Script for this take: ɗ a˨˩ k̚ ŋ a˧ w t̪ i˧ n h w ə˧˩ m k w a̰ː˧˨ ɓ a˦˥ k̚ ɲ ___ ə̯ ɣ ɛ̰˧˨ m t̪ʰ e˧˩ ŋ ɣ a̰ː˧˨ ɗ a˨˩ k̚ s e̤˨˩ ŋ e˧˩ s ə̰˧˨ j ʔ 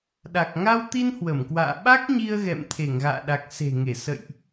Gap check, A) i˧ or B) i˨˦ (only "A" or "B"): A